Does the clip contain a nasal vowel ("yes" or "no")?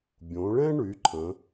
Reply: yes